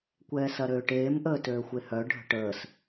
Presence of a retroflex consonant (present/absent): present